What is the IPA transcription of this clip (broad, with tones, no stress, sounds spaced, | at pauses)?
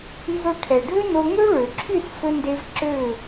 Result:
n z o˧ ʈʰ ɛ˨ ɖʱ ø˦ n o˧ ŋ ø˦ ɭ ø˨ ǁʰ y˦˨ s f ɵ˦ n d e˦ v ǁ ø˦˨